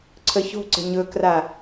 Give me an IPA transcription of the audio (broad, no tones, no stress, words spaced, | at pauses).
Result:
ǀʰəço̤ǀə̤ ɲɵkra